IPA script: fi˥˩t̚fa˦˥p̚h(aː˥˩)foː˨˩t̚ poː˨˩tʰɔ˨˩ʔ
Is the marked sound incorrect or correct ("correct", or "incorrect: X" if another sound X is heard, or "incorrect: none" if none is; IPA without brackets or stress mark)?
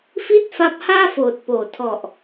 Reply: correct